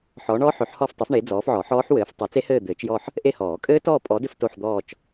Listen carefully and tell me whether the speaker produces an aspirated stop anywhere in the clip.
no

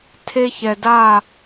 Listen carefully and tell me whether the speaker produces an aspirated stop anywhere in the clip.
yes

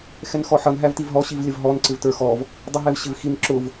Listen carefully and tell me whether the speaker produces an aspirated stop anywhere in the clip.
no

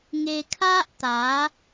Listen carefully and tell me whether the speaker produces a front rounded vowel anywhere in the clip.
no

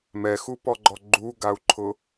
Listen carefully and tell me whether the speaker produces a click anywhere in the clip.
yes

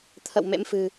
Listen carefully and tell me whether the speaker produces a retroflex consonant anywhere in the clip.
no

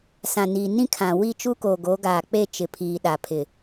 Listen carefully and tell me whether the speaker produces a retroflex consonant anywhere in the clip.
no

